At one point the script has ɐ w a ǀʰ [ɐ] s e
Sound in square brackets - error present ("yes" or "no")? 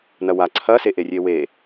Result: no